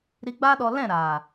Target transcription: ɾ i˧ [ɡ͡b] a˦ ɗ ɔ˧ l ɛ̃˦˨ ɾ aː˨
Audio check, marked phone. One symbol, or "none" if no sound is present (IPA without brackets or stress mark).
ɡ͡b